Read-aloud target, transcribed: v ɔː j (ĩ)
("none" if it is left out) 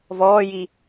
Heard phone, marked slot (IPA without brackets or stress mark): i